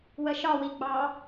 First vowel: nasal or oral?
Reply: oral